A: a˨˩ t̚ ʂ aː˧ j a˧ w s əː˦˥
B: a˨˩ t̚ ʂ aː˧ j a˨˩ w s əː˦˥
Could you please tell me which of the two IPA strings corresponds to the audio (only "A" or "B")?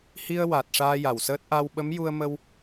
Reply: B